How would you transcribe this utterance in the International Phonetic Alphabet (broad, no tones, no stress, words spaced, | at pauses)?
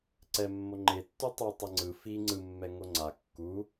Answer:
ǀɛmːo ŋ͡ǃetːu tˤu tˤʌŋ͡ǀɯ fi ŋ͡ǀɯmːɛ ŋoŋ͡ǀa kːu